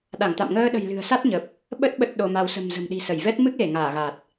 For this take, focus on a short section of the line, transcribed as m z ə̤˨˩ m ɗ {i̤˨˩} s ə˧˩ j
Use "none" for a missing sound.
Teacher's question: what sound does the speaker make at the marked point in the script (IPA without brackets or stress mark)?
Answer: i̤˨˩